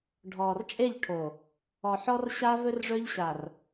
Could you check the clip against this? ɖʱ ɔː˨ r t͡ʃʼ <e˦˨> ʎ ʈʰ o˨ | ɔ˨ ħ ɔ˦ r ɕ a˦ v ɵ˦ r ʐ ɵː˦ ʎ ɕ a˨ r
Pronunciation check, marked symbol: correct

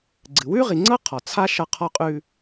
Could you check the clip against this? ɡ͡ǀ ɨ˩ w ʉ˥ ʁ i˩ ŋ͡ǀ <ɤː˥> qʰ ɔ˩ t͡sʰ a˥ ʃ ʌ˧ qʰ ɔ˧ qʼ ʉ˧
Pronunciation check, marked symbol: incorrect: ɤ˥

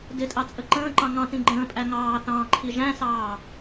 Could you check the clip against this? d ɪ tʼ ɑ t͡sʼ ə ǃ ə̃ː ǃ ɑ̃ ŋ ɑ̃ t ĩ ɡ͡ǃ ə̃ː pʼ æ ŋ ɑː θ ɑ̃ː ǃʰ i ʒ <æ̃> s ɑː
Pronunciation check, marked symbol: correct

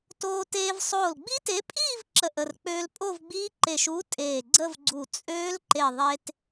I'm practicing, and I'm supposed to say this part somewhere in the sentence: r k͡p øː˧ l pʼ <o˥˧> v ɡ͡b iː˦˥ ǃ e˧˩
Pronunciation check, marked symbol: correct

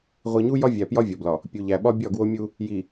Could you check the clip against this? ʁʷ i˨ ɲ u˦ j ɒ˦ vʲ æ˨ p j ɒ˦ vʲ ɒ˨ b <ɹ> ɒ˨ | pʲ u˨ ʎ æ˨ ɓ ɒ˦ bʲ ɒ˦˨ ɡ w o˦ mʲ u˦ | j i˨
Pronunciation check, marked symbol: incorrect: l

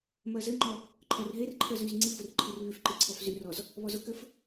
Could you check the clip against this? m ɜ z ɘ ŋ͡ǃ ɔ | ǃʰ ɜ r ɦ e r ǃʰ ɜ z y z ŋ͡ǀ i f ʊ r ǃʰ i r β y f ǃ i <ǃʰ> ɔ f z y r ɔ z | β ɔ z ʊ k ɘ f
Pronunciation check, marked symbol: incorrect: ǀʰ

